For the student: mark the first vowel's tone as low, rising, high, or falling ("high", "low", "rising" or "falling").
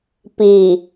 low